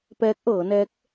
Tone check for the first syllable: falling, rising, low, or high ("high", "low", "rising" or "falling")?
rising